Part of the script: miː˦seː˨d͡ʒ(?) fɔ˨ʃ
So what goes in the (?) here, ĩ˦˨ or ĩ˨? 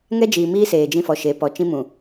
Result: ĩ˦˨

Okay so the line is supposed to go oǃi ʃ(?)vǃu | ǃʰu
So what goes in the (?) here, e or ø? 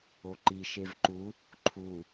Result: e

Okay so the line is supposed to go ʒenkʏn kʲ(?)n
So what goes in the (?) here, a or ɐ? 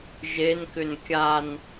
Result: a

